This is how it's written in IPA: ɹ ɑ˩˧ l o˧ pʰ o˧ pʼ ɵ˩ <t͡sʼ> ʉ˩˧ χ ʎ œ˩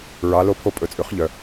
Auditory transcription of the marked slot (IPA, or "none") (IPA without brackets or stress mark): t͡sʼ